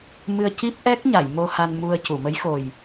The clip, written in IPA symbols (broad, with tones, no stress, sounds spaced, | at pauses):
m ɨ˧ ə̯ c i˦˥ p̚ ʔ ɛ˦˥ k̚ ɲ a˨˩˨ j m o˧ h a˧ n m u˧ ə̯ c u˨˩˨ m ə˧˥ j x o˨˩ j